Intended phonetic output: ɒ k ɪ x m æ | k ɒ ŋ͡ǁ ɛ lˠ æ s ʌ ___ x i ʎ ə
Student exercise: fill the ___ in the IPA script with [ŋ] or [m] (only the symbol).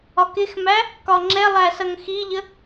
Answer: ŋ